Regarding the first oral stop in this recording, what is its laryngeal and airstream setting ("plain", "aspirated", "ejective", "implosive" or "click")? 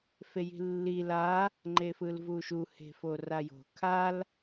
click